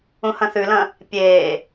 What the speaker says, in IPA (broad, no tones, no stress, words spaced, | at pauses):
ũhɐ̃θʉlɐ̃ | pʲeː